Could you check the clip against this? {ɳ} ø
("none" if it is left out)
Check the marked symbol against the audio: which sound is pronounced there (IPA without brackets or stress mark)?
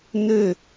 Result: n